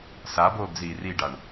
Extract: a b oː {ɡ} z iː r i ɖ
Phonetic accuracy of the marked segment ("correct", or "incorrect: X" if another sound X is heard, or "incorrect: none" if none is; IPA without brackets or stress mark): correct